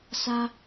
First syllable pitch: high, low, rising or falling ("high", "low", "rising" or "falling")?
high